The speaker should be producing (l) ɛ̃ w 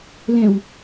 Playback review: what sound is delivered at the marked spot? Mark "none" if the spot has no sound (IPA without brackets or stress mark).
l